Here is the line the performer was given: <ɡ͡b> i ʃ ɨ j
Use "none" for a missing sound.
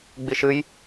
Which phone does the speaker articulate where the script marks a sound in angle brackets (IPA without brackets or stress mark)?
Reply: ɡ͡b